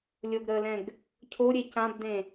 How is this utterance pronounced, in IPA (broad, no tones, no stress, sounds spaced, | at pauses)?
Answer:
lʲ o ɡ ɾ əː l ɛ̃ ɡ | cʰ o ɾʲ e c ã b d ẽ